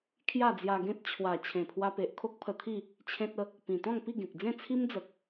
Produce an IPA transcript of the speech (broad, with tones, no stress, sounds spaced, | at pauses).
kʰ j a˥˧ d͡z j a˧ ɡ ẽ˦ t̚ t͡ɕʰ w a˨˩ t͡ɕʰ ẽ˨˩ pʰ w a˧ p e˨ ʔ kʰ o˦ k̚ pʰ ə˧ t̪ʰ i˥˧ | t͡ɕʰ ẽ˦ t̚ ə˦ | p ĩ˨˩ t̪ ɔ̃˥˧ ŋ p i˥˧ ɡ ẽ˨ k̚ d͡z ẽ˥˧ t͡sʰ i˦ m d͡z ə˨ k̚